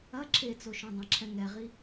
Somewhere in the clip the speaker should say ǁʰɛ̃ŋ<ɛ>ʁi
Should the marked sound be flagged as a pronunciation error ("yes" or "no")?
no